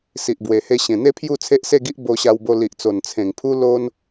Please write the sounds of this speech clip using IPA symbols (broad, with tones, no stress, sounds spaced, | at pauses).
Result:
s i˨ ʔ b w e˨˩ h e˧ ɕ ẽ˨˩ n̪ e˦ pʰ j u˥˧ t͡sʰ e˦ ʔ s e˥˧ ɡ i˦ ʔ b o˧ ɕ a˧ w b o˧ l i˨ ʔ t͡s o˨˩ n t͡sʰ ẽ˨˩ ŋ pʰ u˦ l o˦ n